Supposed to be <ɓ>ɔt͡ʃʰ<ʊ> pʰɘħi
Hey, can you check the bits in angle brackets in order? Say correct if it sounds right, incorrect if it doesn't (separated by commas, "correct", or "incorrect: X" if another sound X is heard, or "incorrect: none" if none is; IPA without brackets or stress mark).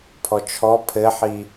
incorrect: pʰ, incorrect: ɔ